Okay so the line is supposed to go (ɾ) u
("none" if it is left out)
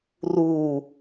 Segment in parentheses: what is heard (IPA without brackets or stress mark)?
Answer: r